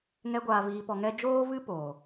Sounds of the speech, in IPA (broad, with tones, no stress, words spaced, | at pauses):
ŋɛ˧ ɡʷaː˧viː˧pɔ˧ŋɛ˦ d͡ʒoː˦vɨ˦ poː˨